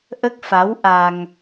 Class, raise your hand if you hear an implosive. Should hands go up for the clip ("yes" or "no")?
no